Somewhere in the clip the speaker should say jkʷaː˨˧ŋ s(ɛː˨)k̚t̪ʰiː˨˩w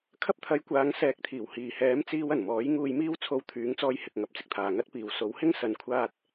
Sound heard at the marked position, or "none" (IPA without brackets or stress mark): ɛː˨˥